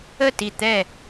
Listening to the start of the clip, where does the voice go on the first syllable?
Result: falling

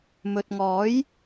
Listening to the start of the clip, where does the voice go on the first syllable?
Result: low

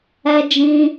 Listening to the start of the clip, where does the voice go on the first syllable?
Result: high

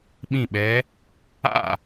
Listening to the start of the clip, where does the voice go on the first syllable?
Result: falling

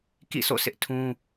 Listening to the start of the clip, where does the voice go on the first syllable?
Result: falling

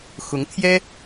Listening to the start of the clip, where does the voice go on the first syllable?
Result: rising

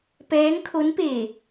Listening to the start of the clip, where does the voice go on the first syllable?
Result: rising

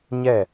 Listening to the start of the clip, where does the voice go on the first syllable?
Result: falling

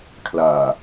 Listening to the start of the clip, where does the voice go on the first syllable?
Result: low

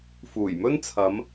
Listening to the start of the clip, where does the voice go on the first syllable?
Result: low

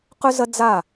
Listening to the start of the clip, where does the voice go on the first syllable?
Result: high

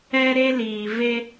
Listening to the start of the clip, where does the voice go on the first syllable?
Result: high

